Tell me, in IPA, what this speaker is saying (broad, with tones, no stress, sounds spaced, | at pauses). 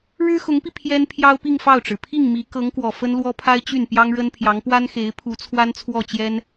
ɻ ɻ̩˥ x ʊ˧˥ ŋ p i˧ pʰ j ɛ˥ n pʰ j ɑ˥ ʊ̯ p i˥˧ ŋ f ɑ˥˩ ʊ̯ ʈ͡ʂ ɻ̩˩ pʰ i˥˩ ŋ m i˧˥ k ɤ˧˥ ŋ k w ɔ˨˩ f ə˥ n l w ɔ˥ pʰ a˥ ɪ̯ t͡ɕ y˥˩ n p j ɑ˥ ŋ ɻ ə˥ n pʰ j ɑ˧˥ ŋ p w a˥ n x e˧˥ ɪ̯ pʰ u˧˥ t͡sʰ w a˥ n t͡sʰ w ɔ˥˩ t͡ɕ j ɛ˥ n